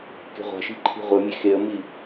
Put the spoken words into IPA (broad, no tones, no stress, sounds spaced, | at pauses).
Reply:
k e̤ ʁʷ a̤ ʃ i̤ ǃʰ i̤ ʁʷ ɤ mʲ e x e ə̯ m i